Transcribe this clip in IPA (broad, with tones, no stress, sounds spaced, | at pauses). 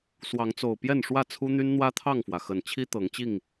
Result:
s w ɑ˨˦ ŋ t͡s o˨˩ ʊ̯ p j ɛ˥˨ n ʂ w ä˥˨ t͡sʰ u˦ n̪ y˦ n n̪ w ä˦ t̪ʰ ɑ˥˨ ŋ f w ä˩ x ə˨˩ n t͡ɕʰ i˦ t̪ ɤ˨˦ ŋ t͡ɕ i˥˨ ŋ